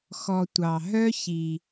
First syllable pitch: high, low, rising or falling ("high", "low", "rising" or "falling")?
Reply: low